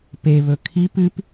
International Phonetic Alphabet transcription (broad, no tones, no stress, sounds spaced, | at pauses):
p e β ɵ kʰ i p ɨ p